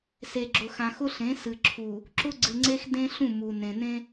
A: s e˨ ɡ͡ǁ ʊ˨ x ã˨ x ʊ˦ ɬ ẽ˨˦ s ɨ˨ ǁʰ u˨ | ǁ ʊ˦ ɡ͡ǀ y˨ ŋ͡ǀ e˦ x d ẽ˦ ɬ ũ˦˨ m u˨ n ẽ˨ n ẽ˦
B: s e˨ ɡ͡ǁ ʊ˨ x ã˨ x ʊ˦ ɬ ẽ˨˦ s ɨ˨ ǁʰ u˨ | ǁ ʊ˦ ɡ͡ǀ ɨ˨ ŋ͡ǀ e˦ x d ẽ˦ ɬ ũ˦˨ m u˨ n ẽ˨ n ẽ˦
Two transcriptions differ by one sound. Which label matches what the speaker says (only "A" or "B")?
B